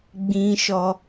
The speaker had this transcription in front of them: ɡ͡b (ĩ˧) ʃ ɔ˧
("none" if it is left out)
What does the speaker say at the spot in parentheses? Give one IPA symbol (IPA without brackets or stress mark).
ĩ˧